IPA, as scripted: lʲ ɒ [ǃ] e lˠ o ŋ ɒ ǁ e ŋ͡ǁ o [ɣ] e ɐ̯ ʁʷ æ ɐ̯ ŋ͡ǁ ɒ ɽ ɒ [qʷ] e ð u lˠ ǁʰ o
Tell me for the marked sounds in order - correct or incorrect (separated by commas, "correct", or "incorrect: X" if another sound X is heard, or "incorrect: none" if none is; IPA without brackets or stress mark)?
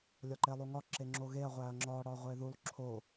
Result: correct, correct, incorrect: ʁʷ